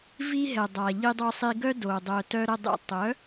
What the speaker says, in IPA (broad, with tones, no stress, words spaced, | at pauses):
vi˧ɦɛ˨dˤa˨ ʎi˧dˤo˧sˤi˧ ɡœ˧ do˨ dˤœ˨ tœ˧ ɾə˨dˤḛ˨ tˤœ˨˦